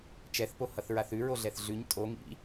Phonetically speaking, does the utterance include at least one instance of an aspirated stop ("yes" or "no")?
no